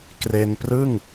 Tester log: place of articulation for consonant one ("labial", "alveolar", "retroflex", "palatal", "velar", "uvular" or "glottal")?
velar